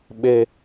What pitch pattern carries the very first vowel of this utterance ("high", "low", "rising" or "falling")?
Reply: low